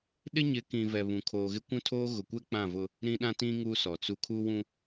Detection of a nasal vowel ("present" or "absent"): present